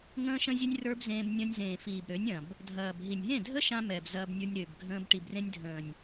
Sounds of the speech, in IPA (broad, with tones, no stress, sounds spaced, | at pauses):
ŋ ə̃ː˦ ʃ ə̃˦ zʲ ɛ˦ nʲ r ə˞˦ b z ẽː˧ b nʲ ɐ̃˧ nʲ z ẽː˨ f iː˨ b ɾ ø˨˦ nʲ ɐ̃˨ b | dʱ ɐː˨ b ɦ i˨ nʲ ɦ ẽ˦˨ dʱ ə˦ ʃ ã˧ m ɛ˨ b z ɐː˧ b nʲ ə˞˧ nʲ ɾ ø˨ b ɡʱ ə̃ː˧ b ʈ i˨ b r ẽ˧ nʲ dʱ ə̃ː˨ nʲ